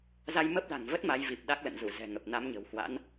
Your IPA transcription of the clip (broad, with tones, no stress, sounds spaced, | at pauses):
z a˧ j m ə˦˥ p̚ l a̤˨˩ ŋ v ə˦˥ t̚ m a˨˦ j v i˨˩ p̚ ɗ a˦˥ k̚ l ə̰˧˨ n z u˧˩ z ɛ̤˨˩ ŋ ə˨˩ p̚ n a˨˦ m ɲ ə̤˨˩ w h w a̰˧˥ n